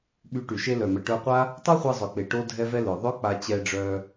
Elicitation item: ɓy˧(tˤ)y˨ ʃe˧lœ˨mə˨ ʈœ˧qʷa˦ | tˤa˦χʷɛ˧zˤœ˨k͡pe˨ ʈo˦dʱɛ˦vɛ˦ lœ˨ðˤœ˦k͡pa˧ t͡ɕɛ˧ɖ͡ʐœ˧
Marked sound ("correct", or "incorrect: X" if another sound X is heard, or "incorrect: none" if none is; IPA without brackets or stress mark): incorrect: ʈ